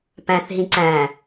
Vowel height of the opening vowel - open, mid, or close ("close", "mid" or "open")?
open